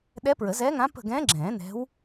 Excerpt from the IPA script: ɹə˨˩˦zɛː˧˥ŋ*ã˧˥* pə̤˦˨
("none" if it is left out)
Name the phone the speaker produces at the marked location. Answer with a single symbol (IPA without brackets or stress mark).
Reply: ã˧˥